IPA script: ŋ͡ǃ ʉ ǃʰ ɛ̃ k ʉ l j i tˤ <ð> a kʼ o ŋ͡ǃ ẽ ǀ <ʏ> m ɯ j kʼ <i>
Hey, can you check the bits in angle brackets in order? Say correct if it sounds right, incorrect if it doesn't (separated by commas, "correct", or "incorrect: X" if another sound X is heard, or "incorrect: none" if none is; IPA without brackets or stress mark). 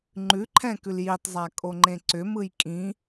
incorrect: zˤ, correct, incorrect: ĩ